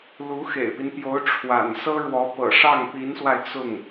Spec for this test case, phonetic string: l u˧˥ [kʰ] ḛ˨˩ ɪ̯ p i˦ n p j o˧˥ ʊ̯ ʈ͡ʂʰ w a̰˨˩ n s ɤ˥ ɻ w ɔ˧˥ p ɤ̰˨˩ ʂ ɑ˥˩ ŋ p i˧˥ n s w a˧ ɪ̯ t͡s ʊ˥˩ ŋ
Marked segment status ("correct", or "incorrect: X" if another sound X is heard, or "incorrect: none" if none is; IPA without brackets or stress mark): incorrect: x